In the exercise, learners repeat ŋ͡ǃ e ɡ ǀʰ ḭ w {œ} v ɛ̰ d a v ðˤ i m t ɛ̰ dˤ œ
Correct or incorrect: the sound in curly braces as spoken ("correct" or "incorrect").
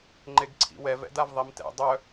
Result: incorrect